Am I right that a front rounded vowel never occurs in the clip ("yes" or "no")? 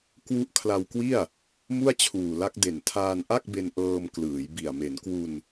yes